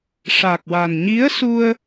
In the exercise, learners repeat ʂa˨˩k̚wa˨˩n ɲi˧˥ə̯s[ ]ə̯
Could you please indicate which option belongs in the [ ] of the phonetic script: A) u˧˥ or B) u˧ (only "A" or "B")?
B